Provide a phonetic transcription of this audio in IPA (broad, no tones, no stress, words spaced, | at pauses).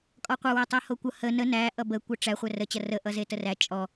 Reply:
kʼɔqʷɐwe tˤehokʷʌ hə nə næ ʔʌbə kʷʌʈ͡ʂæ χʷærət͡ɕɐ rəʔʌ zetəræ t͡ʃʼɔ